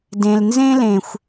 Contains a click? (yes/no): no